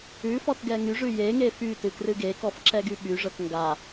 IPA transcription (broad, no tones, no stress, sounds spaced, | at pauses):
ʉ f ɔ t ɡ ɛ ŋ y ʐ ʉ j e ŋ e f y t ɨ k r ɨ ɡ e k ɔ f ǁ ɛ ɡ y ɓ y ʐ ə˞ k ŋ ɡ a